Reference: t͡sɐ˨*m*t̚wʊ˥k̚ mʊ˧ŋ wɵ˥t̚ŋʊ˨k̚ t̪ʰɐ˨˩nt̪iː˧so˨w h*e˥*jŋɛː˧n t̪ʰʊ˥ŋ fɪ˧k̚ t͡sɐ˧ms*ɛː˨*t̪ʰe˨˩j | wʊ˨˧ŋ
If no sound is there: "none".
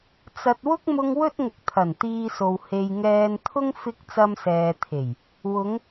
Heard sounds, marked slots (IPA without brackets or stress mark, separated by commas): none, e˨, ɛː˨